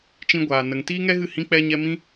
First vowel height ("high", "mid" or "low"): high